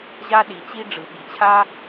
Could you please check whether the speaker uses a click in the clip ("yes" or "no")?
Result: no